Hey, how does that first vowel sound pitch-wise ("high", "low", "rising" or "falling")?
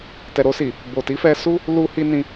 low